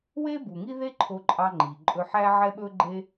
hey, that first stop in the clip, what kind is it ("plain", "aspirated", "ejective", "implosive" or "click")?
plain